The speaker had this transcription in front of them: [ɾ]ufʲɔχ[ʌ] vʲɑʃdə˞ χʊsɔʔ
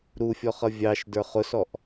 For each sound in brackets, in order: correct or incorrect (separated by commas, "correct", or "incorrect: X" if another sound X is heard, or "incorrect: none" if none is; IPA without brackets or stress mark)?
correct, correct